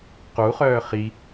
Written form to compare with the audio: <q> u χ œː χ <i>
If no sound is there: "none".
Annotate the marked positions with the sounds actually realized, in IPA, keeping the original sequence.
q, i

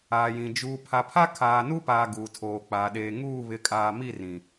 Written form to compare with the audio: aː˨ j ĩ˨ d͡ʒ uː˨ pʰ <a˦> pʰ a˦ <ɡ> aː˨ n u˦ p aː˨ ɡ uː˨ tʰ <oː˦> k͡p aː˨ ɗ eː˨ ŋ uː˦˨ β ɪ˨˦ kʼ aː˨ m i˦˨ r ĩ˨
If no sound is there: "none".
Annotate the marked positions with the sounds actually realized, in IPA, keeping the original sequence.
a˨, kʰ, oː˨

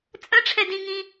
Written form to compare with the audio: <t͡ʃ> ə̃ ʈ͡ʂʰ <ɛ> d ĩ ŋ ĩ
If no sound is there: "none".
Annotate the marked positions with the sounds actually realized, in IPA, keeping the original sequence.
t͡sʼ, ɛ

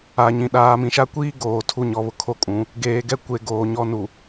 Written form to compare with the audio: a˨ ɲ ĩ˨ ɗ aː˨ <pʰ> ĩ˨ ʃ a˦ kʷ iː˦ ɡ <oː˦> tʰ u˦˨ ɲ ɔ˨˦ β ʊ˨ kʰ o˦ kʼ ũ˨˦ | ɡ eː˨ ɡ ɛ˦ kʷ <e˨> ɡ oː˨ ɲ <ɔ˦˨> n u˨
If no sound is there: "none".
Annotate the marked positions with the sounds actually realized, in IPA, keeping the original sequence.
m, oː˨, e˨, ɔ˦

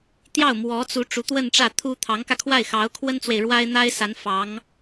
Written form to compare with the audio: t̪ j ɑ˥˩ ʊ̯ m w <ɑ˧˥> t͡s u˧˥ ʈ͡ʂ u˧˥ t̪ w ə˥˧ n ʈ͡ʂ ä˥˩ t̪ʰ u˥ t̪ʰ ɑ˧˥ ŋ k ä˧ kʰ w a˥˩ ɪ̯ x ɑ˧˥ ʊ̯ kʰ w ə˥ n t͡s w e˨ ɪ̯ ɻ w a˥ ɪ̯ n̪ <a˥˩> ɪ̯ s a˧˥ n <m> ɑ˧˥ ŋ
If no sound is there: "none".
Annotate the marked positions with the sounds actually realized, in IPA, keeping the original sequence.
ɔ˧˥, a˥, f

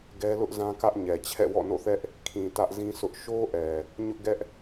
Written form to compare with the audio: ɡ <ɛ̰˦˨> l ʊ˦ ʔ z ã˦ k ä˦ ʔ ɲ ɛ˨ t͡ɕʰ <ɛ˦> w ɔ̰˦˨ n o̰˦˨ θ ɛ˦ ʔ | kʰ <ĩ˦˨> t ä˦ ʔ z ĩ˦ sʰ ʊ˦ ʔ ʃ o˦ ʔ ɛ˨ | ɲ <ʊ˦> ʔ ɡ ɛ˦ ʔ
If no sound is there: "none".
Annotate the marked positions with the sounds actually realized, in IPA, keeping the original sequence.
ɛ˦, ɛ̰˦˨, ĩ˨, ʊ˦

